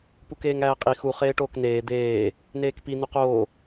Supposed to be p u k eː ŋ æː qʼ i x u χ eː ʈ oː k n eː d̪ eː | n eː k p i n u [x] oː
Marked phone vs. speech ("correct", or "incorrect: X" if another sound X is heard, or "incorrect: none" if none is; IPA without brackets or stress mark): incorrect: q